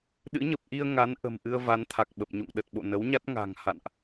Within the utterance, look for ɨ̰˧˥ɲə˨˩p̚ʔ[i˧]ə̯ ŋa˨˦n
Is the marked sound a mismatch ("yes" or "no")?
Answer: no